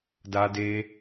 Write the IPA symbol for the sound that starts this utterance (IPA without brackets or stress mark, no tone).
d